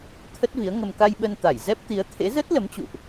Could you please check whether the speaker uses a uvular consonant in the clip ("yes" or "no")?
no